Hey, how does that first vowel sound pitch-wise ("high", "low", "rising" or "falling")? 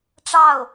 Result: falling